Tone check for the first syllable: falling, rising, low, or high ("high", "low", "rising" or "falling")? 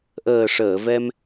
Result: low